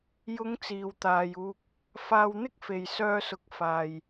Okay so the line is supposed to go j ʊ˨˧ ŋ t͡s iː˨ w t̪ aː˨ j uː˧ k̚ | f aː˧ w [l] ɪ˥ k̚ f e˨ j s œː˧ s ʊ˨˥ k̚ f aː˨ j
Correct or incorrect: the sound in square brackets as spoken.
incorrect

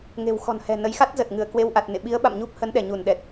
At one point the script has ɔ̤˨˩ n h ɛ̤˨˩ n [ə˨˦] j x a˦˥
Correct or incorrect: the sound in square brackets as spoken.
correct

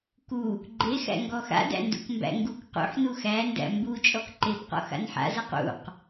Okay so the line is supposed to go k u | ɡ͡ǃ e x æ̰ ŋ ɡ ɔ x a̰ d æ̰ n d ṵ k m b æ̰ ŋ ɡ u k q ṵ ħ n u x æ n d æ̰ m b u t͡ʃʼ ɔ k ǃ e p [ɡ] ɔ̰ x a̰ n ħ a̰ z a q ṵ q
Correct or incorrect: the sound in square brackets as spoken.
incorrect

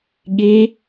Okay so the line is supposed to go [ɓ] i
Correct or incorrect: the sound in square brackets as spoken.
incorrect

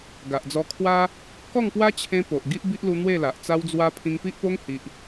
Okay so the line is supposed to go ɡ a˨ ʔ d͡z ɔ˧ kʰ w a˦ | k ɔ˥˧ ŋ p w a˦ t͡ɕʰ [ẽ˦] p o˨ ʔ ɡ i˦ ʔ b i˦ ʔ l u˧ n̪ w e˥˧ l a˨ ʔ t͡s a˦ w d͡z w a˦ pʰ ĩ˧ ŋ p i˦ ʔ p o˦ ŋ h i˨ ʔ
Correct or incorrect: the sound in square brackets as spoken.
correct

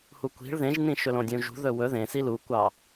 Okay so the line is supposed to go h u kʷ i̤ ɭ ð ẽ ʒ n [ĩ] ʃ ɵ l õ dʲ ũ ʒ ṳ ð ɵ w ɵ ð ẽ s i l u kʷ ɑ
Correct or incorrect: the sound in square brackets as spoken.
correct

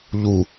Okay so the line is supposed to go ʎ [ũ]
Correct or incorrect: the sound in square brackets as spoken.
incorrect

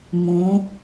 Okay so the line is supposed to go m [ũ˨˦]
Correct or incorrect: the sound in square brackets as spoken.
correct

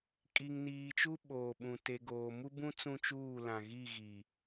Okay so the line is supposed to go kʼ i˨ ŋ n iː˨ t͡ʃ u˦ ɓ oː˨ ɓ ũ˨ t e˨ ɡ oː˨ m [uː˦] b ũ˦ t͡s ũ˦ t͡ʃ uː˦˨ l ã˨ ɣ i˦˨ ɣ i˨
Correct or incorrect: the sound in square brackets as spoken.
incorrect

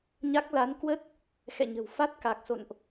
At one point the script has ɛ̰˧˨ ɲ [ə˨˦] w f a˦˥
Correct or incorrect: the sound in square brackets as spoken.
incorrect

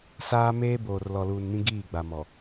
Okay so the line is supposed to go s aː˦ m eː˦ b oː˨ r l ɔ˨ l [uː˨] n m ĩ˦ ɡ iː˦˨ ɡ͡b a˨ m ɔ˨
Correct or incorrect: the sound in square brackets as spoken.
correct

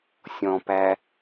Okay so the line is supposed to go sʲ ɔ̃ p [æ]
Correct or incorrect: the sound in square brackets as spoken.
correct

